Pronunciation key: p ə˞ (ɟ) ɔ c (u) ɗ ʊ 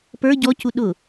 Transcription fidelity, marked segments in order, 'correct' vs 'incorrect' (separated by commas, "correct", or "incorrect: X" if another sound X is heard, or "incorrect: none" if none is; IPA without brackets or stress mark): correct, correct